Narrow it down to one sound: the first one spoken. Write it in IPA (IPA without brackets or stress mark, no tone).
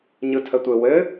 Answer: ɲ